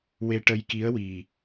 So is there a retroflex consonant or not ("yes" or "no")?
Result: yes